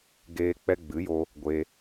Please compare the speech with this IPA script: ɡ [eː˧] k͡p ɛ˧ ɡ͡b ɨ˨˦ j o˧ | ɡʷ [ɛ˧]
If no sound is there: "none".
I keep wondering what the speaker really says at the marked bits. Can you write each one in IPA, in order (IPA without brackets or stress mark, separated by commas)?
eː˧, e˧